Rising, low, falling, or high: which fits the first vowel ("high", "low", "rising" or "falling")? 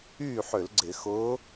falling